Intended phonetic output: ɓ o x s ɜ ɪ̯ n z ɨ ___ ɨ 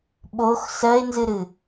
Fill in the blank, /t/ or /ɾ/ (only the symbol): ɾ